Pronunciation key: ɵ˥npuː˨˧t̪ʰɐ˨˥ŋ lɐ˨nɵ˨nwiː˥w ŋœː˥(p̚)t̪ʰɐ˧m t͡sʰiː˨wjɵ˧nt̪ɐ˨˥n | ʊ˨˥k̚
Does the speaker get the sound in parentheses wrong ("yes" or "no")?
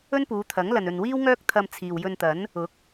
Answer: yes